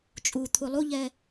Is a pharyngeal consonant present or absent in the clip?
absent